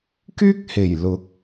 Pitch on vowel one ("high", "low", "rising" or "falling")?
high